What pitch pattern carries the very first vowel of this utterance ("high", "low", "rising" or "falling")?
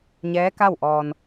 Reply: rising